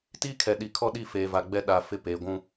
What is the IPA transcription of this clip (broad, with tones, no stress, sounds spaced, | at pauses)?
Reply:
t iː˦ kʰ ɛ˨ ɗ i˨ kʰ ɔ˦ ɗ i˦˨ f eː˨ v a˨ ɡ͡b ɛ˦ ɗ a˨ f ɪ˦ p eː˨ ɡʷ ũ˦